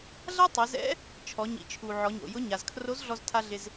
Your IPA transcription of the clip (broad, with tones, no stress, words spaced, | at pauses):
ɮa˥tˤɪ˩˧zɛ̰˧˥ | t͡ʃʰɔ˩˧ɲḭ˩˧t͡ʃʰu˩ ʕɔ˩˧ɲo̰˩jʊ˧˥ɲa˩z kʰro˧˥z ɮɔ˧ztʰa˧ ɮɪ˧z